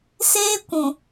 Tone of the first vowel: high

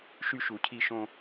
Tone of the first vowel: high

